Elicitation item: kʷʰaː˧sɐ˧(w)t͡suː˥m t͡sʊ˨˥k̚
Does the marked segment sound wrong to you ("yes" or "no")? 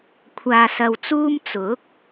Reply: no